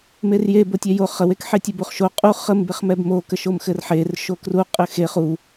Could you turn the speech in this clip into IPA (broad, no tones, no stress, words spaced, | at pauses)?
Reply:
merje botʲɛjo χəwekħetʲə buχʃo qʼu χəmbeχmɛb mokəʃom xɘrħer ʃokruqʼɘ xe χu